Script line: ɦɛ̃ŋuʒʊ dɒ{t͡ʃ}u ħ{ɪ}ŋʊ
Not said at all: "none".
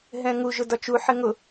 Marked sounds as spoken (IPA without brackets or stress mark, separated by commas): t͡ʃ, ɪ